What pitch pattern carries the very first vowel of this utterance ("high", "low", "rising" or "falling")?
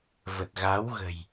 low